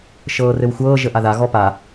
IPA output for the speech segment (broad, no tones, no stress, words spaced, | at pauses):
ʃɤːrɘwxʷɤː ʒəʔaða ɣɔpa